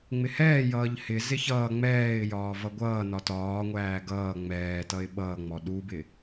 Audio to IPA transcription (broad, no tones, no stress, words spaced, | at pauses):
ŋ͡mɪhɛːjʌːʎ hɪzɪ çʌː ŋ͡mɛːɪ̯jɒː vʌɡʷʌːnɒ tɒːŋʷæː ɡʌː ŋ͡mɛːtʌɪ̯ ɓʌːŋ͡mɔ ɗubɪ